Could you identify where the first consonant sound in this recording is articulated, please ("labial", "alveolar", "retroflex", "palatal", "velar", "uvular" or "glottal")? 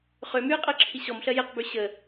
uvular